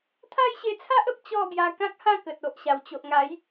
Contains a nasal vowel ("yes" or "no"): yes